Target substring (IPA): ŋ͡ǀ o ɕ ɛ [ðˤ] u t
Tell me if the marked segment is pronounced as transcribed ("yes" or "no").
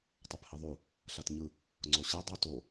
no